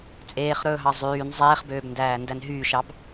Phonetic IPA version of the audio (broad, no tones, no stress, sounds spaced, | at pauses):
t͡sʼ eː χ ɾ ɵː ɦ ɑ zˤ yː n zˤ eː χ b øː b n d æː n d æ n ɦ yː ʃ ɑ b